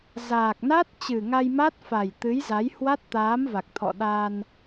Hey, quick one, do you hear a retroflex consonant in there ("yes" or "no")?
no